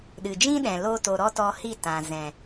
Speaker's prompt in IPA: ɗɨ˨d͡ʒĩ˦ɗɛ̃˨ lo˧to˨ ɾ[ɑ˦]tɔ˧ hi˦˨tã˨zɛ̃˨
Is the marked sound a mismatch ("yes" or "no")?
yes